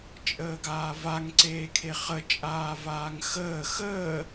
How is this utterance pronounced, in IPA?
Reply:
t͡ʃʼ əː ɡ aː v a ŋ ǀ eː kʰ e χ ə t͡ʃʼ aː v aː ŋ x əː x əː

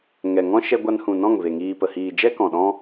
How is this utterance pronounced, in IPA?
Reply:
ŋ ɛ˨ ŋ ɔ̃˦ ʃ ɛ˧ ɡʷ a˧ n h ũ˨ n ɔ̃˦˨ ŋ v e˨ ŋ iː˨ p ə˨ h iː˨ d͡ʒ ɛ˦ k ɔ̃˨ ɗ ɔ̃˦

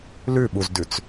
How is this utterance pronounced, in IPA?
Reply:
l ʉ ɓ u z d ʉ t͡s

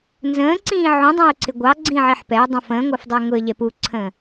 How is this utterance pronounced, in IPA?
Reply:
n z ə̃ː ǀ ĩː ʕ ũ dˤ ɛ̃ ʊ̯ ǀ ɪ ɡʷ ɑ ɡ͡ǀ ĩ ʕ i ħ p ɛ ʊ̯ dˤ ũ f ə̃ː ŋʷ ɜ f dˤ ɛ ɪ̯ ŋ ʊ ə̯ ʎ ɛ p u ǀʰ ə̃ː

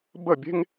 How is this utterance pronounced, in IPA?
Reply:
b ə˥˧ bʲ e̤˥ ŋ

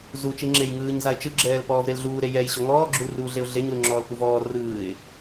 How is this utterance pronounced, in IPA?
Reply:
z u t͡ʃ i ŋ͡ǁ e j ŋ ɯː ɲ z a ɪ̯ t͡ʃ ɯ ɡ͡ǁ ɛː l p ɔː v ɾ e l ɮ uː ɾ e j ɛ j ɕ ɔ ŋ ɔː ɡ͡ǁ u l r uː ɮ e ʊ̯ ɮ e ɲ l u ŋ͡ǁ ɔː l k u v ɔː r ɯː ɪ̯

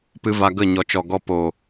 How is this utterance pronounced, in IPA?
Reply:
p ɨ˧ v a˧ ɡ ə˦˨ ɲ ɔ˨ t͡ʃ ɔ˨ ɡ ɔ˧ p o˨

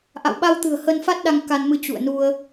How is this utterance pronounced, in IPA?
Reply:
ʔ a̰˧˨ w ɓ a˧ w t̪ ɨ̤˨˩ ə̯ h ə˧ n f a˦˥ t̚ ɗ a˧ ŋ k a˧ n m ɨ˧ t͡ɕ ṵ˧˨ ə̯ n u˧ ə̯

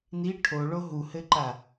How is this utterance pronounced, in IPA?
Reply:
n i ʈʰ o ɭ o ɦ u h ɘ ǃ a

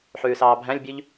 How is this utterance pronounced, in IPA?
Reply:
ħ ʉː s ɑː bʱ æ̃ lʲ bʲ ʉ ʎ

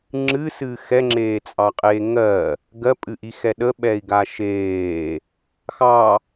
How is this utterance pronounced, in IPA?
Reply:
ŋ͡ǁ ɨ s ɨ x ɛ ŋ͡ǁ eː t͡sʼ ɑ qʼ eː ŋ ɜ | ɡ ɜ pʼ ɨ ʔ i x ɛ ɗ ə ɓ ɛ i̯ ɡ a ʃ eː | x ɑ

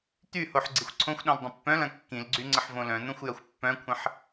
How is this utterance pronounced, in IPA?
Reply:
t̪ y h o ħ ɡ͡ǀ i xʷ ǀʰ õ xʷ ɗ õ l dˤ ə̃ pː œ̃ l ɐ̃ kː ĩ l ɡ͡ǀ y ŋ͡ǀ ə ħ v õ l œ̃ n̪ õ xʷ j ɐ xʷ pː œ̃ kʷʰ ə̃ ħ

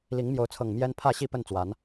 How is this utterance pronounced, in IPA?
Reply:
l i˨˦ ŋ m j o˨˦ ʊ̯ t͡sʰ ɤ˨˩ ŋ m j ɛ˦ n pʰ ä˥˨ ɕ i˥˨ p ə˥˨ n t͡s w a˨˦ n

